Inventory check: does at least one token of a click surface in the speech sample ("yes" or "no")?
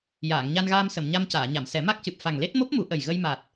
no